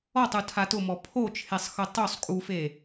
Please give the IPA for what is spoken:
ɔtˤu tʰatʊmɔ pʰot͡ʃʰesˤ xʊtˤosˤ kʼufe

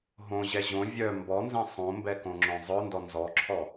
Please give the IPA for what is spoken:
ɦõʑɛ ʑõ vʲœ mbɔnzɛ̃ sˤõmbɛkõŋ͡ǁœ̃ zˤœndɔ nzɔǁʰɔ

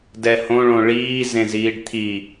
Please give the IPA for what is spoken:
dɛhõɭõ ɭiːzẽziːɖ t̪ʰi

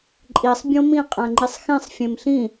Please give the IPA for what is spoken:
ǃʼisˤ bʲõmĩ qʼæ̃ŋ͡ǃisˤxẽsˤ fʲẽmɬĩ

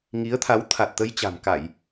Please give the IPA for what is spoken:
ŋi˨˦ə̯t̪ʰa˨˦w t̪ʰa˨˩t̚t̪ə˧jt͡ɕa̤˨˩m ka˧˩˨j

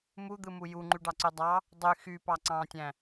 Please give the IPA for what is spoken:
mud̪ɯmu juŋ͡ǃyɖɑǀy dˤɑ | dˤy xypɑ ǀɑ̃tʲæ̃

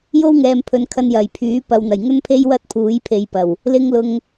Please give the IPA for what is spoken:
jo˥wŋɛː˨mpʰɵ˨nkʰɐ˧n jɐ˨˩jpʰyː˨˥ pɐ˨wn̪ɐ˨˩j ŋɵ˥npʰe˥j wɐ˥t̚pʰuː˨˥j pʰe˨˧jpɐ˨˩w | lɪ˧ŋ lʊ˨ŋ

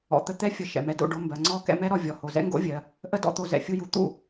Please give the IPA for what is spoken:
ɔ̰˨t̪ə˧ t̪ɛ˧ fʲə˧ ʃɛ̰˨mɛ˨do̰˦˨ɖo˧ mbɜ˨ŋ͡ǀɔ˦ kɛ̰˧mɛ˦ɾɔ˧ vʲɔ˨ho˨zɛ̰˦ŋɡo̰˦ vʲɜ˨ | ʔə˦dɔ̰˦t̪o˧ zɛ̰˨fʲu˧ju˨t̪ṵ˦˨

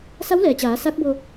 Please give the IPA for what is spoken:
sa˧˥wlɛː˩t͡ɕaː˩˧ sa˧˥k̚bo˧

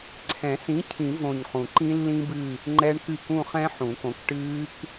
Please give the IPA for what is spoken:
ǀʰɛ̃˨˩˦ sĩ˨˥ cʰĩ˨˩˦võ˨˩ɲ χũ˨˩ǃĩ˦˥lːĩ˦˥bɨ˦˨ | ŋ͡ǃɛ˦˥ɳ kɨ˦˨kũ˦˨χɛ̃˦˥ ħũ˨˩˦kõ˨˥k ʈɨː˦˥k

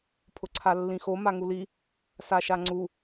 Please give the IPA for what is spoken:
pʰʊǀʰalːĩxo maŋuli | saʃaŋ͡ǀu

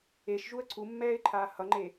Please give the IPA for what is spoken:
eʃʒuə̯ ǀʰumːɛːɪ̯ǃʰaː hʌŋ͡ǃe

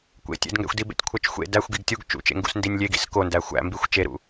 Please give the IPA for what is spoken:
kʷḛtʲḛdŋɡæ̰xʷdi bḛtʲkʷʰæt͡ʃxʷḛ dæxʷ ɡiɡtʲuɡ t͡ʃṵt͡ʃḛŋɡṵs ndinʲlʲeɡḭs kondæ xʷæ̰mbixʷ t͡ʃeɾṵ

